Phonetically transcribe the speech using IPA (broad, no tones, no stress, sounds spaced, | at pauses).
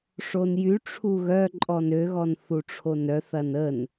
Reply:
ʂ o n j y ʈ͡ʂʰ u ɣ œ ǃʼ ɔ n ø ɣ ɔ n θ u ʈ͡ʂʰ o n œ θ ɐ n ə n